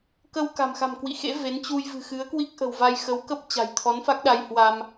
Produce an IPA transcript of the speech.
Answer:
k ə˧ w k a̤˨˩ m x a̤˨˩ m k w ḭ˧˨ x ḛ˧˥ v e˨˦ n t͡ɕ u˧ j v ɨ̤˨˩ x ɨ˨˦ ə̯ k w i˦˥ k̚ ʔ ə̤˨˩ w v a˧ j x ə˨˦ w k ə˦˥ p̚ t͡ɕ a̤˨˩ j t̪ʰ ɔ˨˦ n f a˦˥ k̚ ɗ a˧ j h w a˧ m

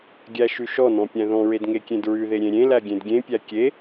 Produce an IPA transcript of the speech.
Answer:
ɡʲ æ ʃ ʉ ʃ ɔ n ɔ̃ pʲ æ̃ ð ɔ̃ ɹ e d ŋ e kʲ ẽ d ɹ ʉ ð e ɾʲ ẽ ɾʲ ẽ l æ ɡʲ ẽ d ɡʲ ẽ pʲ æ kʲ e

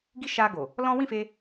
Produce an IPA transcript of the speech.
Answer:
ɡ i˦ ʃ a˧ ɡ o˨ | l ɔ̃˦ w ĩ˦˨ f e˧

